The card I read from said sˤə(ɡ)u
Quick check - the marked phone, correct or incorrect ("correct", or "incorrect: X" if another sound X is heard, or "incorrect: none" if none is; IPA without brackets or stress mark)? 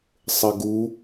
correct